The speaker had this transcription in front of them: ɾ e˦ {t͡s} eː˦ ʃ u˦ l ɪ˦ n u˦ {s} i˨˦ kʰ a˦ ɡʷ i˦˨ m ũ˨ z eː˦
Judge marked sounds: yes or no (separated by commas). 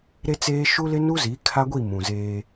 yes, no